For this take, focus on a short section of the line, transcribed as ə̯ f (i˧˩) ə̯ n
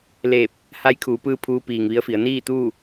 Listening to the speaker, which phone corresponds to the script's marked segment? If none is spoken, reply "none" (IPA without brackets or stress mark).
i˩˧